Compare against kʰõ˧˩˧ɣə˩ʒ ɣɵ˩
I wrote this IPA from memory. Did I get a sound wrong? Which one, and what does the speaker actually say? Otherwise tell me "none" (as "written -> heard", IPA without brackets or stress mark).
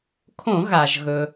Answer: ə˩ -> a˩